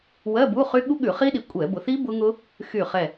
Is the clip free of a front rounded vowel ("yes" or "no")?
no